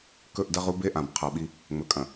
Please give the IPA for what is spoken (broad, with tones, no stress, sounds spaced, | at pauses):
k ɵ˦˨ ʔ d ɐ˦ ʁ u˦ b e˦ ʔ ã˨ b qʰ a˨ ɓ i˦ | ŋ͡m ɵ˨ kʼ ɐ̃˨